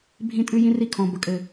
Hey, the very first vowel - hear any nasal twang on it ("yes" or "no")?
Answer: yes